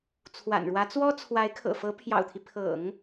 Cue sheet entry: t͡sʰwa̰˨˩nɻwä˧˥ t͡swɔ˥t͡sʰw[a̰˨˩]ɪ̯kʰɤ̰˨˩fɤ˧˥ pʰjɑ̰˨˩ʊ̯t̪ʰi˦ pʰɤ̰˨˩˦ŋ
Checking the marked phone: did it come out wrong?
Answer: yes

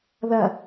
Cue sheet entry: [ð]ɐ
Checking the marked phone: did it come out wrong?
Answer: no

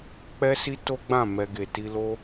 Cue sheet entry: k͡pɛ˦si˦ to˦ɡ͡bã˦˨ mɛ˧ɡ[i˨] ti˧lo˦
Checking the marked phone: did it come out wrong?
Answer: yes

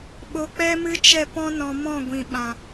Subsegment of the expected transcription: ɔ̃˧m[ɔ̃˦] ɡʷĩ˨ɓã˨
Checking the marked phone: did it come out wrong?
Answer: yes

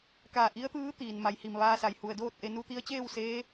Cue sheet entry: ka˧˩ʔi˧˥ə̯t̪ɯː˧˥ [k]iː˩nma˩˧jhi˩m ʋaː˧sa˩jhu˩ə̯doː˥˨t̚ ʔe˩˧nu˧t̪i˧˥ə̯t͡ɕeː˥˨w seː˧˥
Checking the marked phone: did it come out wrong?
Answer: yes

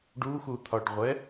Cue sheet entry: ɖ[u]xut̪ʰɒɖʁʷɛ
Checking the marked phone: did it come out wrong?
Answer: no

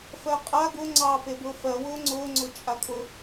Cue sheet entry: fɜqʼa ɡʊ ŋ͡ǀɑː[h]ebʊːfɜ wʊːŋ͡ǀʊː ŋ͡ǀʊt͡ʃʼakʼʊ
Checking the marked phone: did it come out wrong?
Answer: yes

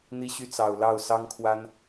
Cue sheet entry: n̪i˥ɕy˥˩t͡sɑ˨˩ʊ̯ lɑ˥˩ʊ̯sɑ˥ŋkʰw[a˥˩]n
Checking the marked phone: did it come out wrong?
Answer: yes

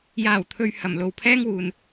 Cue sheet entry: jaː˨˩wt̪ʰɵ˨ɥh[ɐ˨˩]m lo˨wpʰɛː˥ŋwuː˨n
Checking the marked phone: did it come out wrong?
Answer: no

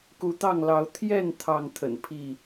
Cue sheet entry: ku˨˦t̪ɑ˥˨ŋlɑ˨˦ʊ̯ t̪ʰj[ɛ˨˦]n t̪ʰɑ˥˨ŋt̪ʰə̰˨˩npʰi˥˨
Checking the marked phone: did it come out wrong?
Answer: yes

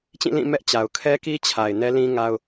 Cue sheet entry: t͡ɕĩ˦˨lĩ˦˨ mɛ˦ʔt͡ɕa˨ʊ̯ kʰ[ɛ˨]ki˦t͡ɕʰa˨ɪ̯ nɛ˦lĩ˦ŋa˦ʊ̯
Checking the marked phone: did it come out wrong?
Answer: yes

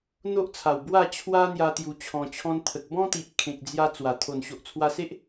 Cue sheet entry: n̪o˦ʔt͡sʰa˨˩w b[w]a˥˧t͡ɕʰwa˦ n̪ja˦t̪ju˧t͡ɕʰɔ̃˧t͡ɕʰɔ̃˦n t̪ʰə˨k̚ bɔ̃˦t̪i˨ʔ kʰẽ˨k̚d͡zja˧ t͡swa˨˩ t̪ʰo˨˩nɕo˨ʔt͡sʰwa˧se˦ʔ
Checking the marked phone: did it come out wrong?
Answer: no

